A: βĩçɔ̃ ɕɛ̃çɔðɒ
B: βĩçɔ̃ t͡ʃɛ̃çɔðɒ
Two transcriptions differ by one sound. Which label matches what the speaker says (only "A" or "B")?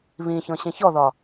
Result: A